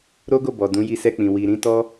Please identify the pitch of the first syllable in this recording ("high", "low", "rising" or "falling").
high